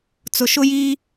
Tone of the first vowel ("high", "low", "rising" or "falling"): low